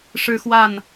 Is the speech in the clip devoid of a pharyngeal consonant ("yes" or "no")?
yes